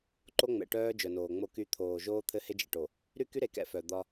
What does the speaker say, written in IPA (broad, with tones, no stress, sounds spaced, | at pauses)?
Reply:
ǃ o˦ ŋ͡m ɛ̰˨ ʈ œː˦ d͡ʒ œ˨ n oː˨ ŋ͡m o˦ k y˦ t̪ʰ oː˨ ʒ oː˦ t̪ʰ ɘ˦ h e˦ d͡ʒ ḛ˨ ʈ o˨ | ɾ y˦ k y˦ ɾ e˨ k ɛ̰˨˦ f œ˨ d̪ ɒ˦